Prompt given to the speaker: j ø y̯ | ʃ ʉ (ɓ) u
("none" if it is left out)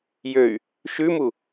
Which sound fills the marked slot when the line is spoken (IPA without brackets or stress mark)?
m